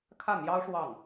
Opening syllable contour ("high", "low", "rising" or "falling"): falling